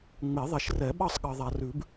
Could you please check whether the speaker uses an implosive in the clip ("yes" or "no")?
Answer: yes